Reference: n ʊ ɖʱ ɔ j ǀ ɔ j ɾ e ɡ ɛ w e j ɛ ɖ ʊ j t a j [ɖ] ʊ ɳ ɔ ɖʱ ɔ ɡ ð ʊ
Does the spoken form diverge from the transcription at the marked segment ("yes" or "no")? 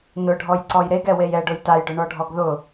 no